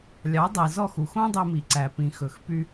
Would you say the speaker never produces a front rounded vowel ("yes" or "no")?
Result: no